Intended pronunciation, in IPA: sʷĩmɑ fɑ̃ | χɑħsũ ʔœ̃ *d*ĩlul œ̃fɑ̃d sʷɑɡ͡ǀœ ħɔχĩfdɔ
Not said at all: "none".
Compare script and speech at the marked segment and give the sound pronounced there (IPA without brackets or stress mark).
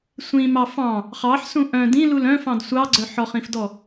d